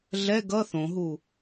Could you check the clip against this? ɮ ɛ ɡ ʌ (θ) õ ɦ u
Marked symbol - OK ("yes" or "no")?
yes